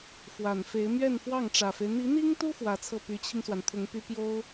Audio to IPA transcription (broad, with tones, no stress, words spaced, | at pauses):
fwa˨˩nfe˧˥ɪ̯ mɥɛ˥˧nfwɑ˥˩ŋʈ͡ʂä˨˩fe˦ɪ̯ n̪i˧˥n̪i˥ŋt̪u˥ fwä˧˥t͡sʰɤ˥˩ py˧˥t͡ɕʰi˧ŋswa˩nt̪ʰʊ˧˥ŋ py˥ pjo˥ʊ̯